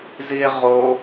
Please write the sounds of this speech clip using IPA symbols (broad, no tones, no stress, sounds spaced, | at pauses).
z i e̯ ʁ o